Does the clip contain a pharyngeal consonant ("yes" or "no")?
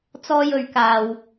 no